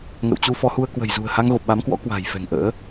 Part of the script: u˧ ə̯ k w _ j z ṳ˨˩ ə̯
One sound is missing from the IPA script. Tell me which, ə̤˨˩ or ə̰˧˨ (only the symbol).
ə̤˨˩